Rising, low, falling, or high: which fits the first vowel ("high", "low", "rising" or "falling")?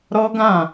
high